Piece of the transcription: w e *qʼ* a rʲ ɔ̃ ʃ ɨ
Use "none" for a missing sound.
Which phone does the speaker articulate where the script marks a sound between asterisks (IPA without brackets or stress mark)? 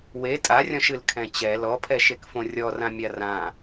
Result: tʼ